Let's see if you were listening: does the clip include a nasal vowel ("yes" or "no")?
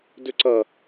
no